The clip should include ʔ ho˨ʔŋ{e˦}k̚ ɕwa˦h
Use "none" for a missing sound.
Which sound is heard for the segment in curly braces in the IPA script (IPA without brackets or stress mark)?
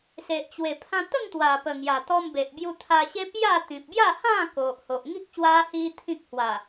i˦